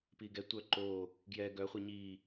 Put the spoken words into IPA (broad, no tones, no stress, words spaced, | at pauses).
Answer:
piɡɛ tʷœǃo | ɡjɛ ɡœ χʷiɲi